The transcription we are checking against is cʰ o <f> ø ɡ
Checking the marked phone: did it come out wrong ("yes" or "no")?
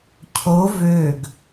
yes